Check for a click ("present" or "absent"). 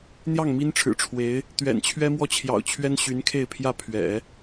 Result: absent